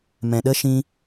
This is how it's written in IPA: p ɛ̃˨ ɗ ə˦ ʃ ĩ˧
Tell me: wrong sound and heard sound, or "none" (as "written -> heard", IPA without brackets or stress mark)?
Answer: p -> m